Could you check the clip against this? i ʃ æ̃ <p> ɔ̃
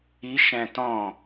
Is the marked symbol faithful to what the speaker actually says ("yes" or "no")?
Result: no